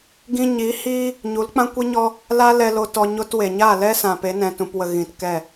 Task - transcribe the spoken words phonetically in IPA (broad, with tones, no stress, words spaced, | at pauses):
ɡĩ˧ɲi˨˦hiː˦ | ɲu˨˦lk͡pã˦kʷi˦ɲɔ˦ | la˦ lɛ˧lo˧ tɔ˧ɲo˦twe˨ ɲa˦˨lɛ˦sã˨ pe˨˦nɛ̃˨tũ˨pwə˨ ɣĩ˨tkɛ˦˨